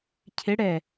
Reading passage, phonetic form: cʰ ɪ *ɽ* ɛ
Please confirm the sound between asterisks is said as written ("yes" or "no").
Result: yes